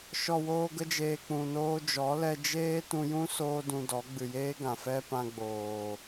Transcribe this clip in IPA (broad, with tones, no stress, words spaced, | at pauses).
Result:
ʃɔ˨woː˧ɡə˧d͡ʒeː˨ k͡pũ˨noː˧d͡ʒɔ˨˦ lɛ˧ d͡ʒeː˦ tũ˧jũ˦ soː˦dũ˧dɔ˨˦ ɡ͡bɨ˨jeː˦ɡã˨ fɛ˦pã˧ ɡ͡boː˨